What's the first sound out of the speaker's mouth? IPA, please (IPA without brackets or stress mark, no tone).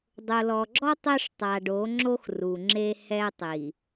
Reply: dˤ